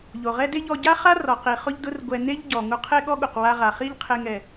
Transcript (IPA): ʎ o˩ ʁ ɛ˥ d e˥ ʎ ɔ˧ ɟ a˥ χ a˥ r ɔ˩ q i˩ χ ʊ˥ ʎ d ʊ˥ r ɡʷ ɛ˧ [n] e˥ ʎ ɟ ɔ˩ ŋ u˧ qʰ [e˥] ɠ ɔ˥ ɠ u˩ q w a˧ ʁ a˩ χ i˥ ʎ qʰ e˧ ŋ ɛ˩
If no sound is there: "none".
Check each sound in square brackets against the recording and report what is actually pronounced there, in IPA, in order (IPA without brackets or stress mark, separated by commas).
n, e˥